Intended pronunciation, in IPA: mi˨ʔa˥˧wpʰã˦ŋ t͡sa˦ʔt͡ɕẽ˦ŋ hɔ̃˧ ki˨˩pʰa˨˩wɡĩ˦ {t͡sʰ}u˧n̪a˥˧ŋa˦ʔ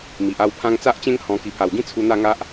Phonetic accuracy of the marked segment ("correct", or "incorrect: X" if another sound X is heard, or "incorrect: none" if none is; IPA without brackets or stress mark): correct